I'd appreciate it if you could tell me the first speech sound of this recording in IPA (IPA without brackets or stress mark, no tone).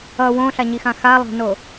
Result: ʌ